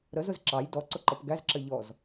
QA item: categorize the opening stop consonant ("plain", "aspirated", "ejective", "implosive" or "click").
click